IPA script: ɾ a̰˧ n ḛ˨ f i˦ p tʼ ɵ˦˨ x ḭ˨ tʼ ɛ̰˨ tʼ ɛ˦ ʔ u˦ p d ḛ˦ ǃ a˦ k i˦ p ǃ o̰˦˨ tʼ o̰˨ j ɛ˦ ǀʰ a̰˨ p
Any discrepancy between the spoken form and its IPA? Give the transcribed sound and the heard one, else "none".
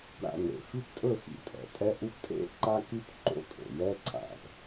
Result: d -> tʼ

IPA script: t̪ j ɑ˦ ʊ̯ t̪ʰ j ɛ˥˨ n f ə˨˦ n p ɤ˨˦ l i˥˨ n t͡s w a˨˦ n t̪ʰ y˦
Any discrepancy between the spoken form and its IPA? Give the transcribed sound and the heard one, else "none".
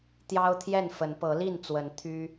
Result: a˨˦ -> ə˨˦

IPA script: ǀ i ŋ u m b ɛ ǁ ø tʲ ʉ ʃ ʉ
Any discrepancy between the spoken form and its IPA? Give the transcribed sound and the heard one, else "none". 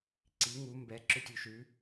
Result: none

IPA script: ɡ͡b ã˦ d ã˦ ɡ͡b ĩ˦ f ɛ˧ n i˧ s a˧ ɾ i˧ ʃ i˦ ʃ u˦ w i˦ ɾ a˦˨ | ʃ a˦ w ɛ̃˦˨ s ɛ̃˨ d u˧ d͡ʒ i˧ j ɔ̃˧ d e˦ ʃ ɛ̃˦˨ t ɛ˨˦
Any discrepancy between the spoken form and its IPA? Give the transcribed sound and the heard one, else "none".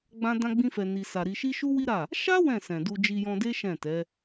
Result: none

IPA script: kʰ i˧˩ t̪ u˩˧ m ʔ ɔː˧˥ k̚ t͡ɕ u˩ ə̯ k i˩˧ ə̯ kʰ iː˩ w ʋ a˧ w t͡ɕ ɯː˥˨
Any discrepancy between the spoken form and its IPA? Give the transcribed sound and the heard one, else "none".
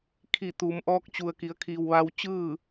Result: none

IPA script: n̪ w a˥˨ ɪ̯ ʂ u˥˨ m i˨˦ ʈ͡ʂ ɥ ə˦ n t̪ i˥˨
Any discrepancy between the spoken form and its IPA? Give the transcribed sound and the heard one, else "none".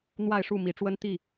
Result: ɥ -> w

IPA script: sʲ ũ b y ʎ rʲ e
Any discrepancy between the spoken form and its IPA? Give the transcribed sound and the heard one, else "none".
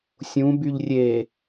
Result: none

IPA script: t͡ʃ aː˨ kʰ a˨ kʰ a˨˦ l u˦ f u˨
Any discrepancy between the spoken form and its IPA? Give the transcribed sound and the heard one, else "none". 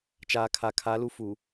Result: none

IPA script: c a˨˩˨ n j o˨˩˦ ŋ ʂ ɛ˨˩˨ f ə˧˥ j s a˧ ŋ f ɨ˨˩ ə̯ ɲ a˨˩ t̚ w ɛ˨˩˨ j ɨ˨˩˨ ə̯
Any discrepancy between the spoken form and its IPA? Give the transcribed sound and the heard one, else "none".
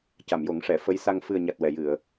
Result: n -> m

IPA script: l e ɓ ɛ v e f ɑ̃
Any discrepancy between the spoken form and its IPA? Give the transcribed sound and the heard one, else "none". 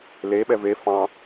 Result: none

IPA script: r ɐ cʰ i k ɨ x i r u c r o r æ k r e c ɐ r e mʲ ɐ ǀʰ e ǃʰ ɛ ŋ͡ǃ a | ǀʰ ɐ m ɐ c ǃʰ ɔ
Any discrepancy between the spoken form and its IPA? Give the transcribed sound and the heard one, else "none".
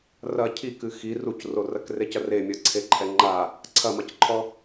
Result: æ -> ɐ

